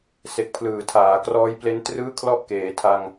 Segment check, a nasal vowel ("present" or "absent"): absent